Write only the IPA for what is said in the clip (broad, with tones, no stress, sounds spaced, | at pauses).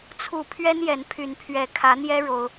t͡sʰ u˨˩ pʰ ɥ ɛ˦ n j ɛ˨˦ n pʰ y˨˦ n pʰ ɥ ɛ˨˩ kʰ ä˨˦ n̪ j ɛ˦ ɻ o˦ ʊ̯